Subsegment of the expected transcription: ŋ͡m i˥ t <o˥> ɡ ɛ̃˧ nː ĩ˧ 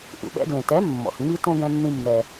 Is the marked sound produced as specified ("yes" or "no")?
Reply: no